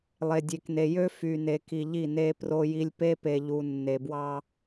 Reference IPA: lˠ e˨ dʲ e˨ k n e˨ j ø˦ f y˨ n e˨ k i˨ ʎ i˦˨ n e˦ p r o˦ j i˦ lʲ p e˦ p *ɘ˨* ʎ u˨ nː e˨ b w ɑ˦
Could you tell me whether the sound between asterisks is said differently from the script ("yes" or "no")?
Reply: yes